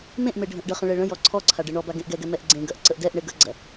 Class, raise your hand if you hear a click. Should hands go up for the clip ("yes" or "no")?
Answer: yes